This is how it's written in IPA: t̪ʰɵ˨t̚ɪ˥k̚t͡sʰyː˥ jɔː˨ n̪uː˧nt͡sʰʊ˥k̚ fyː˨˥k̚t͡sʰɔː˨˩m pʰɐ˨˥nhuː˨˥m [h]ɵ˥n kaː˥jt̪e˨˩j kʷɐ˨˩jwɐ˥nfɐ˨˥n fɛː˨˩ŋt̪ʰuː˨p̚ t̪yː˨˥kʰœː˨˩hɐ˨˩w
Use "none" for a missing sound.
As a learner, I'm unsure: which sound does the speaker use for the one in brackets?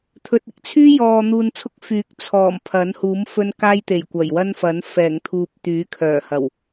f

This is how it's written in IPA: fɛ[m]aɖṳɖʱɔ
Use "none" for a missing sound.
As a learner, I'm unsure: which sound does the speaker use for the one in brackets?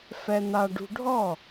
n̪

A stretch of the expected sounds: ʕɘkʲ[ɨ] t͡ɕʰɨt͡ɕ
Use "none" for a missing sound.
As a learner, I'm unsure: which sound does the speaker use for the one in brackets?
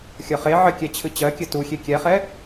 ɛ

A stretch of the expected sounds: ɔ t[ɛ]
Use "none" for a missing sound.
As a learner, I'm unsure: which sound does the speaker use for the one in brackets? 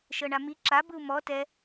ɛ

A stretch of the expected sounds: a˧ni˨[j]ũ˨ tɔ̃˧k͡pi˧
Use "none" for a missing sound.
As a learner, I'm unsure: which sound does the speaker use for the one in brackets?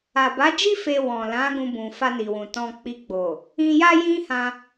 w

